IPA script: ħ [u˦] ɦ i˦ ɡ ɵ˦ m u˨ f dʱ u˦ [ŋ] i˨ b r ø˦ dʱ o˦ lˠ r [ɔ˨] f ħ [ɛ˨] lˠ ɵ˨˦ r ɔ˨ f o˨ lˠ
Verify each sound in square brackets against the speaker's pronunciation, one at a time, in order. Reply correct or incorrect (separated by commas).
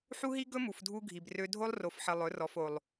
correct, incorrect, incorrect, incorrect